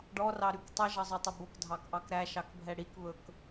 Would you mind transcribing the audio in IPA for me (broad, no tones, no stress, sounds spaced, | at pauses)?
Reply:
ɖ ɔ r ɑ ɾ y k tˤ ɛ ʒ ɑ zˤ o tˤ ɵ b o k dʱ ɑ k ʔ ɑ k ɾ æ ʃ ɑ k bʱ ɛ ɽ i k β ɵ k